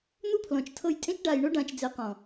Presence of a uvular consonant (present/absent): present